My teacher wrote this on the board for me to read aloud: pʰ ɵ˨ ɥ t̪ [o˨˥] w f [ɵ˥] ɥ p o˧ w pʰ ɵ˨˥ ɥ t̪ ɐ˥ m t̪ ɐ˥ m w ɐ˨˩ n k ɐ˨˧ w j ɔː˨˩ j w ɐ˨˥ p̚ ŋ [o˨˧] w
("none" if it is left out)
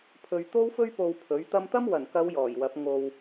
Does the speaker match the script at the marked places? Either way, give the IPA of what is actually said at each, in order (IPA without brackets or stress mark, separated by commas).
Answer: o˥, ɵ˥, o˧